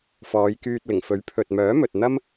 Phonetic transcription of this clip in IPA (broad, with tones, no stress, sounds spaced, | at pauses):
f ɔː˨˧ j k yː˧ t̚ l ɪ˨˩ ŋ f ɵ˨˥ ɥ pʰ ɵ˨ t̚ m œː˨˥ m ɵ˨ t̚ n̪ ɐ˥ m